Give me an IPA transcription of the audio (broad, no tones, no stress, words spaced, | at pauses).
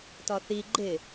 tɒθi ɡ͡ǃɪ